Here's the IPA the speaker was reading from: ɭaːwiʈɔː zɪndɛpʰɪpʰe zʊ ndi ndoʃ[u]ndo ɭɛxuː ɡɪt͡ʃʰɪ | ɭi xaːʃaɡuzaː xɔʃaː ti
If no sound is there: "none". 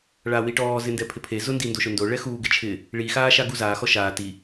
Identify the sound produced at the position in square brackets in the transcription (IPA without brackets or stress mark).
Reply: ʊ